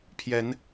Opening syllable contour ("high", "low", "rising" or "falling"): rising